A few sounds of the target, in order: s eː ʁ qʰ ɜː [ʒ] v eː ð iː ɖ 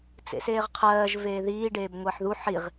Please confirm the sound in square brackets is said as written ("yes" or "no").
yes